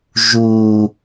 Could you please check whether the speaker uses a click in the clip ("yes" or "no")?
no